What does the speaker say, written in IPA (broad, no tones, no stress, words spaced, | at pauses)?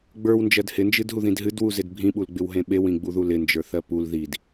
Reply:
ɡ͡bə˞wnd͡ʒɜd hɪnd͡ʒɨdɦuðĩd ɦɨdwuzɪd bʱĩɓulɡ͡bɪwɦẽ ɓewĩɡ͡buðu lɪnd͡ʒə˞θɜ pul ðid